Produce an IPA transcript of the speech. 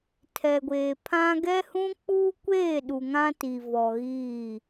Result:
tʰ ɛ˨ ɡʷ eː˨ pʰ ã˦ ɡ ɛ˦ h ũ˦ k͡p uː˦ kʷ eː˦˨ ɗ u˨ ŋ ã˦ t i˨ v ɔ˨ ɣ iː˦˨

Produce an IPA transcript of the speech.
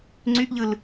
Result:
ŋ͡ǀ y ʔ ʎ ɯ l

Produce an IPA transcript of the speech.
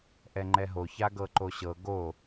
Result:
ʔ ɛ ŋ͡ǃ ɛ ɦ o ç a ɡ ɤ ǃ o ɕ ɤ ɡ o

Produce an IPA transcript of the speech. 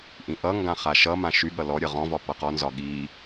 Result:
ʔ ĩ ʔ ʌ ŋ ɡ ã χ a ʃ ʌ m ã ʃ y ɠ ʌ l ɔ ɾʲ ʌ ʁ ɔ̃ v ɒ p ʌ q ɔ n z ɒ ɠ i

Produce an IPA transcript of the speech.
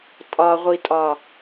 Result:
tʼ ɒ ʁʷ i tʼ ɒ

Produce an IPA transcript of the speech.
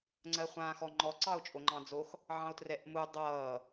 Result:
ŋ͡ǀ ɜ χʷ ãː x ɔ ŋ͡ǃ ɔ ǀ ɑ o̯ t͡ʃʼ o ŋ͡ǃ ɑ̃ d͡z o x | ʕ ɑ̃ o̯ t r ɛ ʔ m u dˤ ʌː

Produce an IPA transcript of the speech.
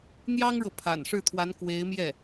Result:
n̪ j ɑ˥ ŋ ɻ ɤ˨ pʰ a̰˨˩ n ʂ ɻ̩˥˩ t̪ʰ w a˧˥ n k w e˧˥ ɪ̯ m j ɛ˥˩

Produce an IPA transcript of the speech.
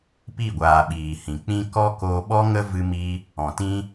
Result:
p i˦˨ ɡʷ aː˨ ɓ iː˨ h ĩ˨ k͡p ĩ˦ k ɔ˦ k o˧ ɓ ɔ˦ ŋ ə˦ v ɨ˧ m i˧ | ɔ̃˨ t ĩ˦

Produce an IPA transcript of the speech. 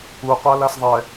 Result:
u qʷ a l a s ðˤ ɛ

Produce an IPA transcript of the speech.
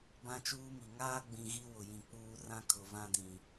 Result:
b ã˦ t͡ʃ uː˦ m i˨ ŋ aː˦ ɡ͡b ĩ˨ ɣ i˦ w ʊ˨ j ĩ˨ k͡p uː˦ r ã˦ kʰ ʊ˨ v ã˦ d ĩ˨

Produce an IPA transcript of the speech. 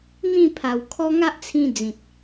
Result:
n̪ ĩ˥˧ pʰ a˨˩ w kʰ ɔ˦ ŋ a˦ ʔ t͡sʰ ĩ˧ d͡z ĩ˨ t̚

